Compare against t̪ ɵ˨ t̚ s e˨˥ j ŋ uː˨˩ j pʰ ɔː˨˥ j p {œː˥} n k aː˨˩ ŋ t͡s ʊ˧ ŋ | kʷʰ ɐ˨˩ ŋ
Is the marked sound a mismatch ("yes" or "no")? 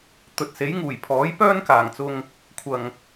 no